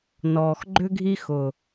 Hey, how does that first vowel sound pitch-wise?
low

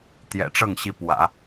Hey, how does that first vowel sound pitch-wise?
low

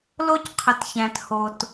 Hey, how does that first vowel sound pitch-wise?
high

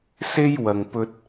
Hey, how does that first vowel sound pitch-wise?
high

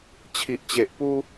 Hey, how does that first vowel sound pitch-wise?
low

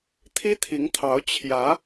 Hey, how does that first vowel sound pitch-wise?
high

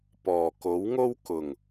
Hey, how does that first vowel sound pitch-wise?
low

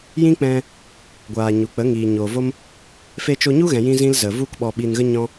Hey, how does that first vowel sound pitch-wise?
high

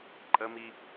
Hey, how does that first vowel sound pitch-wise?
high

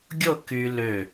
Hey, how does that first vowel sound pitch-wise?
falling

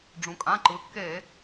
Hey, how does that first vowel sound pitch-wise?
low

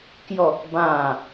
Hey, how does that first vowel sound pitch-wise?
falling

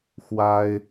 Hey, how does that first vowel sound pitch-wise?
high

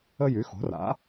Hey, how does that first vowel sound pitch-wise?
high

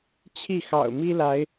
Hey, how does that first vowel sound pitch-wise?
falling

